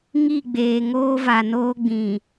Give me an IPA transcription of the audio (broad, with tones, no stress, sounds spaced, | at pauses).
ŋ i˦˨ ɡ͡b eː˨ ŋ oː˦ v a˨ n oː˦ ɡ͡b ĩ˨